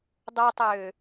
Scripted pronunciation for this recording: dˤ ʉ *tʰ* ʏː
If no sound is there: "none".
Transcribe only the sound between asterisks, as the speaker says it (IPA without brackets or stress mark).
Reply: tˤ